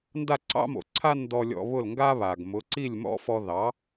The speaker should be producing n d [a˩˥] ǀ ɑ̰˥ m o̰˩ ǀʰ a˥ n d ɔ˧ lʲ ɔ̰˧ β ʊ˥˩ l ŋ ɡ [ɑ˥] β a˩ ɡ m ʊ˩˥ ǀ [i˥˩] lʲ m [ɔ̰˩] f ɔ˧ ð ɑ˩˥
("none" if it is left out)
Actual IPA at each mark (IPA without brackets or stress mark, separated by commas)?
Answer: a˥˩, a˥, i˥˩, ɔ̰˥